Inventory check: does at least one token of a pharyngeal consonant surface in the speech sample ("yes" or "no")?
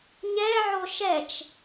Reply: yes